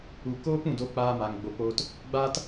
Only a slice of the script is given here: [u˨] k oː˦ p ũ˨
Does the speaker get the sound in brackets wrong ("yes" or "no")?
no